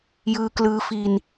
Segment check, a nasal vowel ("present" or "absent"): absent